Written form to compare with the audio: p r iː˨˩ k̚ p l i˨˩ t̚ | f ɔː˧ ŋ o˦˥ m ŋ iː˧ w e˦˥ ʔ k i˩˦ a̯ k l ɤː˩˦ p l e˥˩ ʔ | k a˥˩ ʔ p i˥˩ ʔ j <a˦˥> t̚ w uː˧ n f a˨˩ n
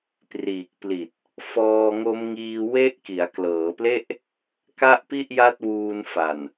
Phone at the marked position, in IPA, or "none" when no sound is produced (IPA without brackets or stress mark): a˦˥